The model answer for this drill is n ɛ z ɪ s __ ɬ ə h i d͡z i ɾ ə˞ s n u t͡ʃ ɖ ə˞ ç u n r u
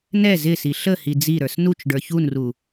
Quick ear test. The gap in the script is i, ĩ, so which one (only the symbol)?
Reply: i